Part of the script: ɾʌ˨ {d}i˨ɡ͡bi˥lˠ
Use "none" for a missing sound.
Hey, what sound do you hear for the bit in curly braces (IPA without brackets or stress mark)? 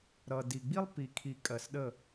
d